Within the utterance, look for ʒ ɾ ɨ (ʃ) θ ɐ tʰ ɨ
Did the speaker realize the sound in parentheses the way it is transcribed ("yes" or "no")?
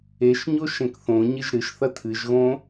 yes